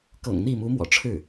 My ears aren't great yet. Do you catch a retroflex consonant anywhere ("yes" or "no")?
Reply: yes